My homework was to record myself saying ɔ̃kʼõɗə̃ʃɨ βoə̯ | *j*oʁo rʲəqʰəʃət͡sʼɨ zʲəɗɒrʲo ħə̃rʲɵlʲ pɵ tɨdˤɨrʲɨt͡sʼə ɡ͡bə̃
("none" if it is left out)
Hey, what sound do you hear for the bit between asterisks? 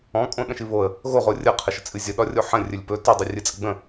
ɣ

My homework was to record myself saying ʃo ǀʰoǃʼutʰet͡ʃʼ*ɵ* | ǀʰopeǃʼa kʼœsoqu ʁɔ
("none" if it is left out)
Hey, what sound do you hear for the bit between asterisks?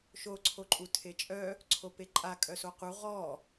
œ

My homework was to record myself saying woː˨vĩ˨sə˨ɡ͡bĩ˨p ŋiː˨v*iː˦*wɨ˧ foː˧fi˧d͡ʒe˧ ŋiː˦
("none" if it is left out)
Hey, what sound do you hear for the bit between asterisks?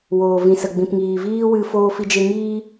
iː˦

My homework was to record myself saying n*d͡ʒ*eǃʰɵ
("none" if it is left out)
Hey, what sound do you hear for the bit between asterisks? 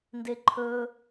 d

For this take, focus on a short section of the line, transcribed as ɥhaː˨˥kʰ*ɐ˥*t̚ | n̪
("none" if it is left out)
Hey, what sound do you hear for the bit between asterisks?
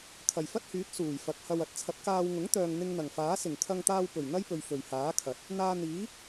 ɐ˨˥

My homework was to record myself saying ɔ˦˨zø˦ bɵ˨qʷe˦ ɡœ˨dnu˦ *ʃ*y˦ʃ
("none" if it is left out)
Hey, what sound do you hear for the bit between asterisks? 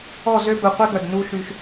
ʃ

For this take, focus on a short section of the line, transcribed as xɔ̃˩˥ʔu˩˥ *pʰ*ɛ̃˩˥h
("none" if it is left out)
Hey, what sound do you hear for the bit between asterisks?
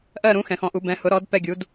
b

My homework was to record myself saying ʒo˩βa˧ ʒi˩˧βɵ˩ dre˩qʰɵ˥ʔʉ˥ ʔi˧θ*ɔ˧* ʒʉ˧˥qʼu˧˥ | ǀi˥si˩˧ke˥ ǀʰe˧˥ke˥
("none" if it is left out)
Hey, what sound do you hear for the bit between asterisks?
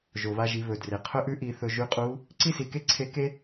ɵ˧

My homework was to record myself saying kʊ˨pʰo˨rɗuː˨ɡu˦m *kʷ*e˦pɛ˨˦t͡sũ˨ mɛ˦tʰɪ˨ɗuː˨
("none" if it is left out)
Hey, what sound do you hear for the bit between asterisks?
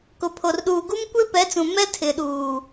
kʷ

